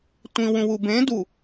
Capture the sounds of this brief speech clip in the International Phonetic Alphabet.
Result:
tʷ ĩ w ũ w u b ẽ d u

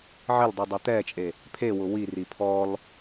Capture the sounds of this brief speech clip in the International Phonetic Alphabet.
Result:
ʕ ɪ l dˤ i dˤ o t̪ ɛ t͡ʃʼ e | pʰ e w ʊ w i r i pʰ ɔ l

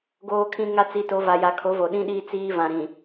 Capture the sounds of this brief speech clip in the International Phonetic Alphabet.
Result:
ɡ oː˦ kʰ ĩ˦ ŋ a˦ t͡s i˨˦ t o˨˦ v a˨ j a˨ kʰ o˨˦ v o˨ ɗ ĩ˦ ɗ iː˦ t͡s iː˦ v ã˨ ɾ ĩ˨

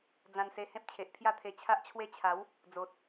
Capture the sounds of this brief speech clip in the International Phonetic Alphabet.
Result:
d͡z ã˧ n s e˧ h ẽ˦ p̚ t͡ɕʰ e˨ ʔ pʰ j a˦ t̪ʰ e˧ t͡ɕʰ a˦ ʔ t͡ɕʰ w e˦ t͡ɕʰ a˨˦ w | d͡z o˨ t̚

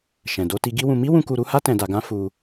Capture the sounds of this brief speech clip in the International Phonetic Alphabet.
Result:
ʃ ɛ̃˨ d o˧ t i˧ ɡ i˦ w ũ˧ m i˦ w ũ˧ k u˧ ɾ u˦ h a˦ t ɛ̃˧ d a˧ ɡ ã˦ f u˧

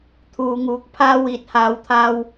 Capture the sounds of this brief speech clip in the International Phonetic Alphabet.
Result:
t̪ʰ uː˨˧ ŋ uː˨˥ k̚ pʰ aː˥ w iː˨ t̚ h aː˨˧ w t̪ʰ aː˧ w

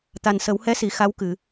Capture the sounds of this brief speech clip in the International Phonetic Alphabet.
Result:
t̪ a˨˩ n s ə˨˩˦ w h ɛ˧˥ s i˨˩˨ x a˧˥ w k ɨ˨˩˨

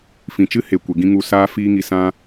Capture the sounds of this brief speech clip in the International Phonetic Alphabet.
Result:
f ĩ˨ t͡ʃ ɨ˦ h e˨ kʷ e˨ ɡ ĩ˧ ŋ u˧ s aː˧ f iː˧ ŋ i˨ s ã˧

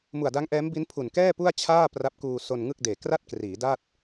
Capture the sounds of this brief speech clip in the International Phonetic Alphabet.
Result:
m u˨˩ a̯ d a˦˥ ŋ ʔ ɛː˦˥ m b i˦˥ n pʰ u˨˩ n k ɛː˥˩ p u˥˩ a̯ t͡ɕʰ aː˥˩ p r a˦˥ p̚ k uː˧ s o˧ n ŋ ɯ˥˩ k̚ d eː˨˩ k r a˥˩ t̚ k r iː˩˦ d a˥˩ t̚

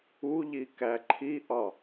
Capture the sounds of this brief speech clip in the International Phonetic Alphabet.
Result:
u ʎ i k æ ǃʰ i ʔ ɒ

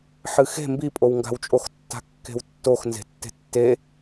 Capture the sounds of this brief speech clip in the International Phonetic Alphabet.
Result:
ħ ɨ x e̤ m b i pʼ o w ŋ ɡ a̤ w t͡ʃʼ o x tː a̤ kː e̤ w tː o x n z e̤ tː e̤ tː e

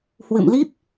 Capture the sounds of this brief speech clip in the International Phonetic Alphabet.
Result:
h w ɨ̰˧˨ m l i˦˥ p̚

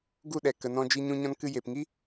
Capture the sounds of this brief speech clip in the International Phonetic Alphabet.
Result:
ɡ u˦˨ ɗ ɛ˨ k ə˨ n ɔ̃˧ d͡ʒ i˧ ɲ ũ˧ ɲ ɔ̃˧ n k ɨ˧ j e˨ p ŋ i˦

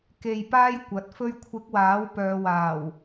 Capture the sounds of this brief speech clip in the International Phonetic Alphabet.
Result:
k e˧ j p aː˥ j kʷ ɐ˨˥ t̚ f ɵ˧ ɥ kʷʰ ɪ˨˥ k̚ w aː˨˥ w p œː˨˧ w aː˨˩ w

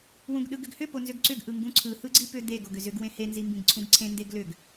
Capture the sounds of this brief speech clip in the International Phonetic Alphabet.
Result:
w ũ ɡ ɗ ɯ ɡ ʏ ɡ h ʏ p o n z ʏ ɡ ǀ ʏ ɡ ʔ ɯ ŋ ɡ ũ ǀʰ ɯ h ɯ ɡ͡ǀ i p ʏ d̪ e ɡ o ɡ ʏ z ʏ ɡ w ẽ h e n z i m b ĩ ɡ ǀʰ ũ ɡ ǀʰ ẽ n d e ɡ l ʏ ɡ

